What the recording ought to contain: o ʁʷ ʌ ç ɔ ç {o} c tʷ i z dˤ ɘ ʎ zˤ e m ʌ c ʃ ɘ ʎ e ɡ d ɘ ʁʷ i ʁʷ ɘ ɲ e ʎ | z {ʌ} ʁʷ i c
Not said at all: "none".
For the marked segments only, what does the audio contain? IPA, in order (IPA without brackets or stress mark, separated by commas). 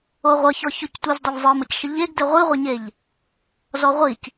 o, ɔ